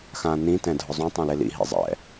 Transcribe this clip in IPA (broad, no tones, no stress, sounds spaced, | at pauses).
x ã n ĩ t ɛ̃ dʱ ʊ zˤ ũ tˤ õ l e l ḭ ɦ ḭ zˤ ɛ̰